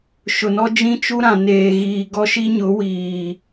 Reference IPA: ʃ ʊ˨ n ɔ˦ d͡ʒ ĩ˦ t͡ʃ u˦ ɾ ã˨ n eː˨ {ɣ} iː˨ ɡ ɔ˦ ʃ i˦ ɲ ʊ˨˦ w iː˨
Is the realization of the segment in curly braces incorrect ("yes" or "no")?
no